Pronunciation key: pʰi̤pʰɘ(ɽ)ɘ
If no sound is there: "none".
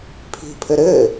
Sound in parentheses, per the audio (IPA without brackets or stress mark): ɾ